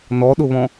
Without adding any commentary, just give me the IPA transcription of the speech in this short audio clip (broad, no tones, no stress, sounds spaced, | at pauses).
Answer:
n ɔ ɗ ʊ β ɔ̃